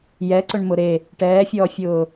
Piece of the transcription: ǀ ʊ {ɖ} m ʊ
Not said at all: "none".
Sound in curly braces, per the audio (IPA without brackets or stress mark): ɳ